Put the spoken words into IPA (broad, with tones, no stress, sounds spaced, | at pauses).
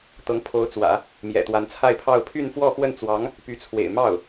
t̪ ɤ˧˥ ŋ pʰ o˧˥ ʊ̯ t͡s w ä̰˨˩˦ | m j ɛ̰˨˩ t̪ w a˧˥ n t͡sʰ a˥˧ ɪ̯ pʰ ɑ˥˧ ʊ̯ pʰ y˥˧ n f w ɔ˥˧ x w ə˥˩ n t͡s w ɑ˧˥ ŋ | p y˧˥ t͡sʰ w ḛ˨˩ ɪ̯ m ɑ˥˩ ʊ̯